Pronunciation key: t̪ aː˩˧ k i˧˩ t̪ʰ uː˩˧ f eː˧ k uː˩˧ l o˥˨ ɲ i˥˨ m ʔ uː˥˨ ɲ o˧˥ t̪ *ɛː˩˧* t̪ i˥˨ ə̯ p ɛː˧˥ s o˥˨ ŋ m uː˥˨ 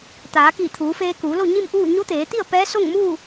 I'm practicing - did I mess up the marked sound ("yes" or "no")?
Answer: yes